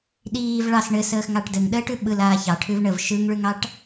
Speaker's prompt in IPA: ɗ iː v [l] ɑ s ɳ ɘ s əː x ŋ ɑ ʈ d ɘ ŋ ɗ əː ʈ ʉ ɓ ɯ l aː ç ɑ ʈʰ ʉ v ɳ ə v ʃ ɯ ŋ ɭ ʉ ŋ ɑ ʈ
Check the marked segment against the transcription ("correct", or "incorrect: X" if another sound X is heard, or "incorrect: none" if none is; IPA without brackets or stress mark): incorrect: ɭ